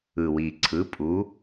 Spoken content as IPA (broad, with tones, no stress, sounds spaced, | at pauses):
ɯ˨˩ w i˨˩ ǀʰ ɯ˩˥ pʼ u˩˥